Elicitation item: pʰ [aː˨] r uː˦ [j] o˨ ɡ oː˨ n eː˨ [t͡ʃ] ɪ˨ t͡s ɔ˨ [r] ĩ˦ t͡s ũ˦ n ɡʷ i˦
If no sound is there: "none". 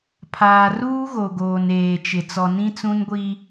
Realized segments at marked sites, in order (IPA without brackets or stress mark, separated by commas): aː˨, ɣ, t͡ʃ, n